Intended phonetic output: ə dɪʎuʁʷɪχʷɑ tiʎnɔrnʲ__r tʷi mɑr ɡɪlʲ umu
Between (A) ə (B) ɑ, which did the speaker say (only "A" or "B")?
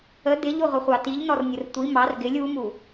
A